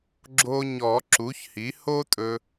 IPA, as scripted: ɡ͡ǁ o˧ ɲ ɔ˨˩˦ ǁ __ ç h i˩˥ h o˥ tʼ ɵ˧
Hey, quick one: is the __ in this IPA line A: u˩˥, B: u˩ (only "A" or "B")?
A